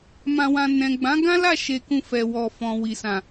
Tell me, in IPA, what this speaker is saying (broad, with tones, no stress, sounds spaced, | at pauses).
m ã˧ w ã˧ n ɛ̃˨ ɡ͡b ã˨˦ ɡ ã˦ l a˦˨ ʃ e˧ k ũ˧ f ɛ˨ w ɔ˨ f ɔ̃˨ w i˨ s ã˨